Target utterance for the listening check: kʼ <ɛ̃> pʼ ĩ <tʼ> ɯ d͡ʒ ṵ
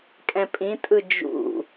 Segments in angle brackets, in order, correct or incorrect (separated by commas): correct, correct